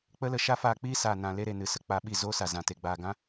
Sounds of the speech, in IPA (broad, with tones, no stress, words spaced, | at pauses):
k͡pə˦lə˧ ʃa˦faː˧k͡piː˦saː˨ nã˨le˧ ɾe˨nɨ˨sə˨ k͡pa˧ɓi˦˨zoː˦sa˨ zã˨te˨ ɡ͡baː˨ɡã˦